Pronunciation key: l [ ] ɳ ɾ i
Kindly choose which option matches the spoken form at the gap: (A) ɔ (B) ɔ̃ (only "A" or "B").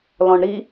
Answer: B